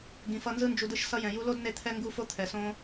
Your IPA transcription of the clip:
ɡĩ˧fʌ˦ nzɯ˦nd͡ʒu˧dɯ˦ʃ sʌ˧jɛ̃˨ju˧lo˦d ne˦t̪ʰɛ˦ ŋɡu˦fo˦t̪ʰɛ˨sõ˦

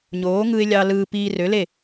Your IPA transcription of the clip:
ɲoː˨˦ŋɯ˧ɪ̯lʲɑ˧ lɯː˧ piː˧rø˨˦le˦˨

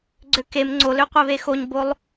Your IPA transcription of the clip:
ɡ͡ǀøkem ŋ͡ǀoløqʷeβe xoɲbolˠ

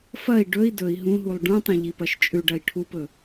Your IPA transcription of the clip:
fɐi̯ ɖɵi̯ dɵi̯ ɦũɦulˠ ɖũtˤɐ̃ ʎipɐʃt͡ʃʼʉɖɐi̯ ʈʰupɵ

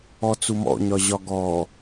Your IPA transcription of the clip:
ɔt͡sumɔ̰ ɲɒʑɒɡɔ

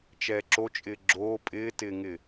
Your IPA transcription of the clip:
t͡ʃɛːǁot͡ʃʼɪː ɡ͡ǁoː pʼɪːtɪːŋɪː

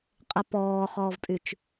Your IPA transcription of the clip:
qʼepɔːχɔːvpʼyt͡ʃ

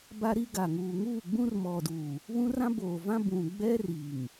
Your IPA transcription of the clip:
ba˦ɾi˦ɡa˨ ŋuː˨ŋuː˦˨ɡ͡bũ˦r mɔ˨duː˨ | βũ˦rã˦boː˨vã˦ bũ˨ ɡ͡bɛ˦ri˨ŋ

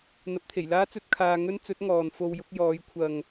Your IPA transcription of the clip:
n̪ɐ˨˥p̚t̪ʰe˨˩jlaː˥ t͡sɵ˥t̚kʰaː˧ ŋɵ˥n t͡sɵ˨˥t̚ ŋɔː˨n fo˧wjʊ˨˥k̚jɔː˨˥j kʷʰɐ˨ŋ

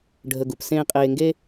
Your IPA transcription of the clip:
ɖʱə˧ɡu˩p sẽː˥ qʼeː˧ŋɡe˥

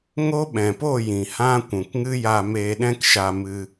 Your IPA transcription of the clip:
ŋo˦ɓɛ̃˨po˦˨ jĩ˨ hã˦ kʷũ˨kŋɨ˦ ja˧meː˧ɗɛ̃˦k ʃa˧mɨ˧

